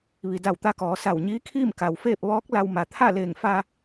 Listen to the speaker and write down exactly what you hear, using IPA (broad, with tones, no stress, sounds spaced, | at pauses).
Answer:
ʋ i˩ d a˧˩ w t̪ a˧ k ɔː˩˧ s a˧˩ w ɲ iː˧˥ kʰ iː˥˨ m k a˩ w f eː˥˨ p̚ ʋ ɔː˧˥ k̚ l a˧ w m a˩ t̪ʰ a˥˨ l eː˧˩ ŋ f a˧